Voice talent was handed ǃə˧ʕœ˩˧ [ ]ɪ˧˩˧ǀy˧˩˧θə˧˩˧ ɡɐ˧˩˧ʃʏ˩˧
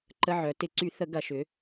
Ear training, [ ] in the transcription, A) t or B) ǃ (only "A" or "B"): A